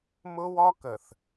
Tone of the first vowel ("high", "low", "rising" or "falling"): high